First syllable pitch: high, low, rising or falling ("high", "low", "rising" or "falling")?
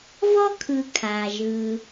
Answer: high